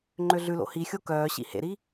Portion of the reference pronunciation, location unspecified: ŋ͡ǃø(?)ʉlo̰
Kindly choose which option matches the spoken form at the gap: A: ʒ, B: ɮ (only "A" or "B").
B